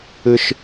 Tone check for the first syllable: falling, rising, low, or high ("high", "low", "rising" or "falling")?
high